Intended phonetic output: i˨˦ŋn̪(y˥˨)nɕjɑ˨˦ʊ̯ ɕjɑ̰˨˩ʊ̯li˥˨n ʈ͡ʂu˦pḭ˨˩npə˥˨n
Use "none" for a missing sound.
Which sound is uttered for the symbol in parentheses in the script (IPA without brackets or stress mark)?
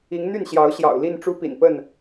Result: y˥˨